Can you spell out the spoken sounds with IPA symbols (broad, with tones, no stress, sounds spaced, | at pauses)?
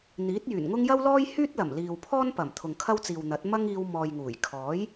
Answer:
n̪ iː˨˥ t̚ j yː˨˩ n ŋ ʊ˥ ŋ j ɐ˥ w l ɔː˥ j h yː˥ t̚ l ɐ˨˩ m l iː˨ w pʰ ɔː˥ n p ɐ˨˩ m t̪ʰ ʊ˨ ŋ kʰ ɐ˥ w t͡s iː˨ w n̪ ɐ˨˥ t̚ m ɐ˥ ŋ iː˧ w m ɔː˨ j ŋ uː˨˩ j kʰ ɔː˨˥ j